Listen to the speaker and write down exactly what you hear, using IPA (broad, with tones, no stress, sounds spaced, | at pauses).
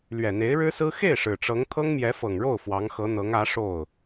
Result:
l ɥ ɛ˨˩ n̪ e˧˥ ɪ̯ ɻ ɻ̩˥ s ɹ̩˥ x e˥˩ ɪ̯ ʂ ɻ̩˨˩ ʈ͡ʂ ɤ˧˥ ŋ t̪ʰ ɤ˥ ŋ m j ɛ˧˥ f ɤ˨˩ ŋ ɻ o˥˩ ʊ̯ f w ɑ˧˥ ŋ x ɤ˧˥ n̪ ɤ˧˥ ŋ ä˧˥ ʂ o˥˩ ʊ̯